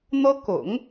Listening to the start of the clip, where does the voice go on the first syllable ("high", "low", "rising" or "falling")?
high